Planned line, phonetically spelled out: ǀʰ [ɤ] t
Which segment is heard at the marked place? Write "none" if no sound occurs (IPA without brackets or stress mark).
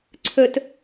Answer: ɵ